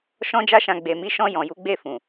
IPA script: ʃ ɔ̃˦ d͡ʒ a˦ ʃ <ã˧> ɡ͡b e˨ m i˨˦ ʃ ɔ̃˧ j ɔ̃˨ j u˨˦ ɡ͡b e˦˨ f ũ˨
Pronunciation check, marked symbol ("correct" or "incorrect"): correct